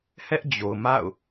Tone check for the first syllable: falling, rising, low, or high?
high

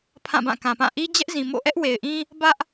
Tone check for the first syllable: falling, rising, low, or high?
falling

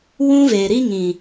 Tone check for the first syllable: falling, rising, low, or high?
high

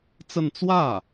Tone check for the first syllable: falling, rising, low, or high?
falling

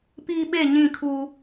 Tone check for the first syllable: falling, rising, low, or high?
high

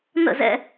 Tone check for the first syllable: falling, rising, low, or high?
falling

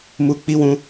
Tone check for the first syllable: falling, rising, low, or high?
low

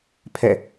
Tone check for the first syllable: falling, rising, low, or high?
falling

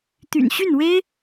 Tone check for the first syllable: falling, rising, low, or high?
low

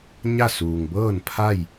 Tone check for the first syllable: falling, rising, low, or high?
falling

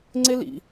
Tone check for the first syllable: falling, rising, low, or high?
high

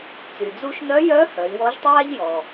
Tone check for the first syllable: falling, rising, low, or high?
low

